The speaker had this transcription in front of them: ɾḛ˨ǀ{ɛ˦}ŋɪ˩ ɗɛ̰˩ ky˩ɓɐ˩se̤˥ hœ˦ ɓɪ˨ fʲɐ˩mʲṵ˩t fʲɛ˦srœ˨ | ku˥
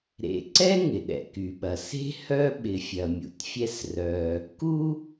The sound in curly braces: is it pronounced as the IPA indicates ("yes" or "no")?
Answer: no